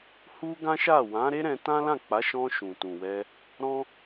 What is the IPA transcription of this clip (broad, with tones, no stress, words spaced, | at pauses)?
hu˦ɡã˦ʃa˦˨ wã˨˦ɾe˦ ɾɛ̃˧ tã˦lã˦˨k͡pa˨˦ʃɔ̃˧ ʃũ˨tũ˨wɛ˧ | ɾɔ̃˦